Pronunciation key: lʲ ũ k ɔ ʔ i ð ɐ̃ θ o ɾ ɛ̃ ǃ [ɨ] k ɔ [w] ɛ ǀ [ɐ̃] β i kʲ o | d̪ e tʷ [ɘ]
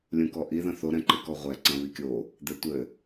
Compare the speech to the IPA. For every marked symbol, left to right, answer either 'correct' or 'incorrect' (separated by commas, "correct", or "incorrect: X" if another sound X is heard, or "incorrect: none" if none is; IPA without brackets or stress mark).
correct, incorrect: ʁʷ, correct, correct